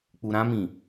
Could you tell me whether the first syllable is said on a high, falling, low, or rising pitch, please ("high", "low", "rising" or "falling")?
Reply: low